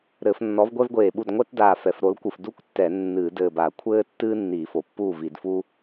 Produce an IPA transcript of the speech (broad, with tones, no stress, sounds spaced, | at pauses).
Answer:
ɾ ɘ˧˩˧ f nː ɔ˨˥ v ɡʷ ɛ˥ v ɡʷ eː˧˩ ɓ u˥˩ d ŋʷ ɛ˥ t d aː˧˩ f ɛ˩˧ f ɾ o˨˥ l kʷ ɨ˧˩ f d u˥ kʷ tː ɛ˧˩˧ nː ɨː˧˩˧ d ɘː˧˩ b a˧˩˧ kʷʰ ɘː˥ tː ɨː˥ nː iː˧˩˧ f o˩˧ pː uː˥˩ v i˧˩˧ d f uː˥